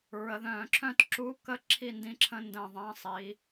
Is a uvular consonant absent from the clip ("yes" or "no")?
yes